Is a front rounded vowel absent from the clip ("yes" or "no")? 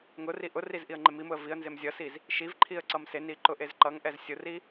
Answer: yes